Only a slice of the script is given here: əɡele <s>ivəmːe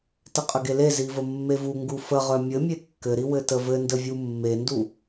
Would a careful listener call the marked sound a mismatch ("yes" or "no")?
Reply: yes